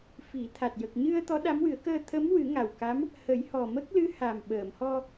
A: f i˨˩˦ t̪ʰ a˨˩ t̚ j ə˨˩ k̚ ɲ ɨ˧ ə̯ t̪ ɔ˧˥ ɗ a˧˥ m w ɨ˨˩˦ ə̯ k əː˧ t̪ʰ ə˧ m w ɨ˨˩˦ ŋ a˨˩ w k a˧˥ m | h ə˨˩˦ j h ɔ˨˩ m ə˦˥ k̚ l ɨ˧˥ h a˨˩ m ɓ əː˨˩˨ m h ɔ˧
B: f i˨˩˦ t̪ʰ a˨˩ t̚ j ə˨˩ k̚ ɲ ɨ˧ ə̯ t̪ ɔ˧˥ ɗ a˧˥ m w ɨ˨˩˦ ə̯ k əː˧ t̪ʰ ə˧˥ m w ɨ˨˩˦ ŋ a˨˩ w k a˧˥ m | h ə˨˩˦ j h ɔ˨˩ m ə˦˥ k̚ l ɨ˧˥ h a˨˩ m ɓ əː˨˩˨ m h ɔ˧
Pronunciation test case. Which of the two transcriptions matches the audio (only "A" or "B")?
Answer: B